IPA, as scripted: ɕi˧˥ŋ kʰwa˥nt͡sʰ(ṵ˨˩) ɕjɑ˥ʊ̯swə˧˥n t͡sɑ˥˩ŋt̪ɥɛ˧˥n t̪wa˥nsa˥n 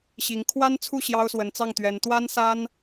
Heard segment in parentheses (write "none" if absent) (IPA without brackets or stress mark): u˥˩